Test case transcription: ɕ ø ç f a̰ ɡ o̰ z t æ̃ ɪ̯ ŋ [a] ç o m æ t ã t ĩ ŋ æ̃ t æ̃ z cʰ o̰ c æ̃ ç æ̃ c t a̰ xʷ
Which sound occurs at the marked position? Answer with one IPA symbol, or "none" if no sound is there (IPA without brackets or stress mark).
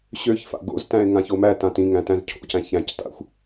ã